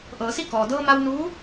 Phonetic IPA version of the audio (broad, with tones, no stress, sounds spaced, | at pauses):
ʔ ɤː˩˧ s i˥˨ k ɔː˩ d ɤː˧ m a˧ w n uː˧˥